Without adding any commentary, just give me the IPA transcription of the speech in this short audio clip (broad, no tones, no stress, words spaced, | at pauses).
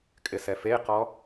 kʼɪsɛfeqɔ